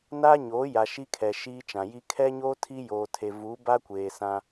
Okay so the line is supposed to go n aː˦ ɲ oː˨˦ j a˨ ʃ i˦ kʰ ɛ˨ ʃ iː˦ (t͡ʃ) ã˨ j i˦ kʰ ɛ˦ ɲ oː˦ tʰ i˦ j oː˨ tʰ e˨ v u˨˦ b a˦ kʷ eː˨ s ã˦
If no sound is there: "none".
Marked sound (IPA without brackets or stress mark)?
t͡ʃ